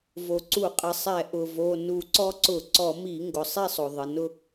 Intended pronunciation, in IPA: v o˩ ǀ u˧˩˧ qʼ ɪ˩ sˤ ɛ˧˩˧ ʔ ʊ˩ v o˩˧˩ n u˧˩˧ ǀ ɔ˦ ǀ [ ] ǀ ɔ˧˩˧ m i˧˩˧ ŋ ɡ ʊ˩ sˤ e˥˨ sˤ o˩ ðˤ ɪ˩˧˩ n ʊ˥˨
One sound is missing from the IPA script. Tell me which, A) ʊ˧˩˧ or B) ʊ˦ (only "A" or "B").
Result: A